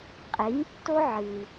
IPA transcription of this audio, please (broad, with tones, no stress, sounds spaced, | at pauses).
qʼ e˩˥ ɲ tː o˥ ʕ ɨ˩